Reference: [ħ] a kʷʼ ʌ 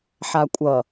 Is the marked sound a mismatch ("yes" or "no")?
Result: no